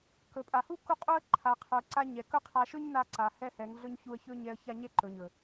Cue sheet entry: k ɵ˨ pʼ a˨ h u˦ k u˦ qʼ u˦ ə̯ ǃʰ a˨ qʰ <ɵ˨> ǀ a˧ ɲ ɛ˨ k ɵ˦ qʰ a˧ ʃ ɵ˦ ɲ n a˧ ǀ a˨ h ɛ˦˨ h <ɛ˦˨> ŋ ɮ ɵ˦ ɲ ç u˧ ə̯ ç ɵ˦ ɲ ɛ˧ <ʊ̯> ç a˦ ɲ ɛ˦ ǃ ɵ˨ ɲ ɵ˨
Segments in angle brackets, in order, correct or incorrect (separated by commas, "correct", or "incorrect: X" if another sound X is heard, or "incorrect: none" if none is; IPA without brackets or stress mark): correct, incorrect: ɛ˨˦, incorrect: ə̯